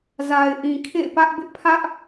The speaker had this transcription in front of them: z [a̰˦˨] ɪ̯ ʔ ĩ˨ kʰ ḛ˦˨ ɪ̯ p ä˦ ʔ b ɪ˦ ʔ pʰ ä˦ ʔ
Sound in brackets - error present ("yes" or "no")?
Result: yes